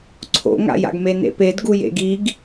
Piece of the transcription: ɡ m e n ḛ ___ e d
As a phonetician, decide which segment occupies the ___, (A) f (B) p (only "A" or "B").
B